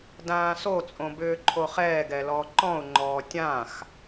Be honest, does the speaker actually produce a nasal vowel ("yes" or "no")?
yes